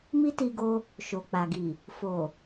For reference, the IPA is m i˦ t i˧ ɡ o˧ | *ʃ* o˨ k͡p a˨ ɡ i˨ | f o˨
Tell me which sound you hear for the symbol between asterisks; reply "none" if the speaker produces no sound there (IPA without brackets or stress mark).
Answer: ʃ